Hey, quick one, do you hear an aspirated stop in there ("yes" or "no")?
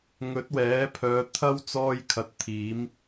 yes